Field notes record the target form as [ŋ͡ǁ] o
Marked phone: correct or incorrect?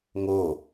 incorrect: ŋ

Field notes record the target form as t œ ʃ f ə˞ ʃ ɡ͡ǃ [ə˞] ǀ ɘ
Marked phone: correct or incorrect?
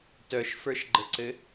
incorrect: ə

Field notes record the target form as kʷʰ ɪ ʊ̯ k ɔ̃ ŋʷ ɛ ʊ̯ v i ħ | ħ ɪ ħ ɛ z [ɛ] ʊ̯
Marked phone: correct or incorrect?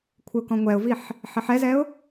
correct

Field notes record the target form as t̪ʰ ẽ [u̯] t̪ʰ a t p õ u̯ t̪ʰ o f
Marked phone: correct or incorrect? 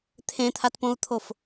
incorrect: none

